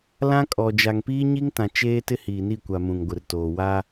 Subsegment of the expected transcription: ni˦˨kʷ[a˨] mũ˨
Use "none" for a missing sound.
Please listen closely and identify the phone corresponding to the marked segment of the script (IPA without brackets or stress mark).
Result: a˨